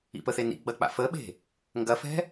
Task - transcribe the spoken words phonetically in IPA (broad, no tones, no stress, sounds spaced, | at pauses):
ḭ p ə θ e n ḭ ɡ͡b ɐ k͡p a̰ f ə ɓ e̤ | ŋ ɡ ɐ f ɛ̤